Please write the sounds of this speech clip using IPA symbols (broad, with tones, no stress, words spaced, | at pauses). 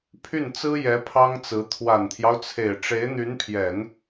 pʰy˥˩nt͡sɹ̩˥jɛ˧˥ pʰɑ˥ŋt͡sɹ̩˧˥ t̪ʰwa˨˩nt̪ʰjɑ˦ʊ̯ t͡sʰe˨˩ɪ̯ʈ͡ʂe˧˥ɪ̯n̪y˧˥npʰjɛ˨˩˦n